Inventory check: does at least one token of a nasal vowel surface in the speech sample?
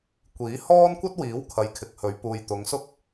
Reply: no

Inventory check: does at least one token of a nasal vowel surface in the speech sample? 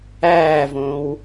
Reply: yes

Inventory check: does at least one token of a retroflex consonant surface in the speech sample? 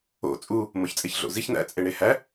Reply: yes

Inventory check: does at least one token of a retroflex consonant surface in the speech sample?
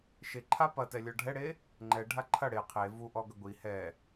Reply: yes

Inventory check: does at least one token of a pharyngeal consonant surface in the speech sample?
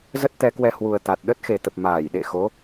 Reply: no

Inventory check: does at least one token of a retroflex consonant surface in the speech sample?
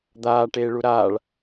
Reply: yes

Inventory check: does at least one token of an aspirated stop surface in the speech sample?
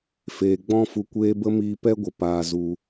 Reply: no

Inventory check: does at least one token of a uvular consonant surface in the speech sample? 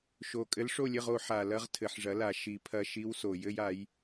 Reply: yes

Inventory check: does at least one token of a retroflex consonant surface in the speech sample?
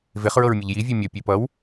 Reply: no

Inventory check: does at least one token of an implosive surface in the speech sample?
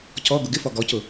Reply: no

